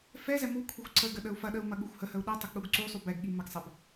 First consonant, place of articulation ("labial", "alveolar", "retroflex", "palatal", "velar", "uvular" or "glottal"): labial